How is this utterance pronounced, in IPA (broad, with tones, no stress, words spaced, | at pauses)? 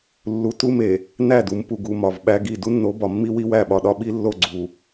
lːu˨ tu˦me˨ | næ˦˨du˨˦mpu˨ɡu˨ mɒ˨vɓæ˦ɡi˦˨ du˦nːo˨˦bɒ˨mːi˦ wi˦wæ˦˨ɓɒ˨ɗɒ˦ ɓi˦lːo˦˨ɡ͡ǀu˨